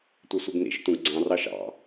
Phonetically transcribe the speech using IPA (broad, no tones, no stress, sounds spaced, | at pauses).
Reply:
tʷ ɛ sʷ i ɡ n ḭ ʃ t ũ ɡ ɡ͡ǀ ɑ̃ r ɑ ʃ ɑ̰